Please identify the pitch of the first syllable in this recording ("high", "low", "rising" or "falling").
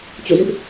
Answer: falling